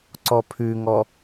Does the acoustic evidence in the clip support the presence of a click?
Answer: yes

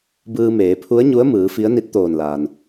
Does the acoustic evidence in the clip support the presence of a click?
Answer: no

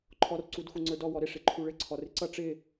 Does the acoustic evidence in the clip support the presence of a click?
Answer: yes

